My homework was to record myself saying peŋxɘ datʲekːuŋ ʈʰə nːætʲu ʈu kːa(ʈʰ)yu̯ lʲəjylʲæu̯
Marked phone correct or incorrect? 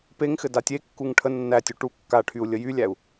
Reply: correct